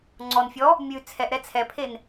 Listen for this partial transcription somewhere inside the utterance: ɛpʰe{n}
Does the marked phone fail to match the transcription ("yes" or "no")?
no